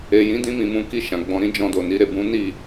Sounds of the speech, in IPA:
e˨ j ĩ˨˦ d ĩ˧ m ĩ˨ m ũ˨˦ k i˦˨ ʃ ã˨ ɡ͡b ɔ̃˧ ɾ ĩ˦ d͡ʒ ɔ̃˧ d o˨ n i˨˦ ɾ e˦˨ b ũ˨˦ n i˦˨

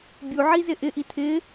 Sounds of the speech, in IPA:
bʲ u ʕ i z ɪ ʔ ɪ ʔ i tʰ ɪ

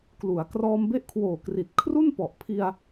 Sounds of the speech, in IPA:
k l u˩˦ a̯ k r ɔː˧ m b e˦˥ ʔ kʰ w oː˨˩ k r i˨˩ t̚ kʰ r u˥˩ n p ɔ˨˩ ʔ pʰ i˧ a̯

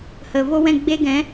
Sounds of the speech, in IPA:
h ə˨ v o˦ w ɛ̃˦˨ ɡ͡b e˦ ɡ ɛ̃˨˦

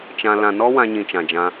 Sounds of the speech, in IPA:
t͡ʃ ã˧ l ã˧ n ɔ˦ w ã˧ ɲ ĩ˨ t͡ʃ ã˨ d͡ʒ ã˧

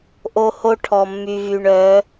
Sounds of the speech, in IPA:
ʔ o˧ h o˦ ʈʰ ɔ˨ mː y˨ v y˨ ɳ œ˨˦

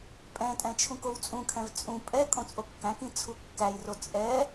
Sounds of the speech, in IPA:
pʼ ɛ̃ tʼ ɛ̃ t͡ʃʰ ũ k o w t͡sʼ ũ kʰ ɛ̃ v t͡sʼ ũ pʼ ɛ kʼ õ t͡sʼ o kː æ̃ k ĩ t͡sʰ u kː æ j r o t͡sʼ ɛ

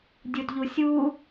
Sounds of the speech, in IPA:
dʲ u d ʎ u sʲ u

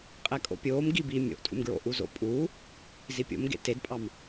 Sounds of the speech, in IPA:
qʼ ɛ kʼ o̰ pʲ oː m ɡ i b iː mʲ o̰ ʔ tʼ ṵ m ɡ ɹ o̰ ʔ u z o̰ pʼ uː | z i pʲ o̰ m ɡ ḛ t e d pʼ ɑ m

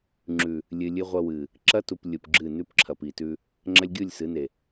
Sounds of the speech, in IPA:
ŋ͡ǁ ʉ˨ | lʲ ɨ˨ lʲ ɨ˦ ʁʷ ɐ˦ w ɨ˨ | ǁ ɐ˦ t u˨ p lʲ u˨ p ɡ͡ǁ ɨ˦˨ n ʉ˦ p ǁʰ ɐ˨ p i˨ t ʉ˦ | ŋ͡ǁ ɐ˦ lʲ ɡʲ u˦˨ lʲ s ɨ˨˦ n e˨

